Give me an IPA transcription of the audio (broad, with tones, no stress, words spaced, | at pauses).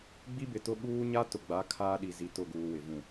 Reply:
ɡ͡bi˦bɪ˨tʊ˦ ɓuː˦ ɲa˦tʊ˨ɡ͡ba˨˦ kʰaː˦ɗi˨ zi˨tʊ˦˨ɡuː˨ wɪ˨vũ˦˨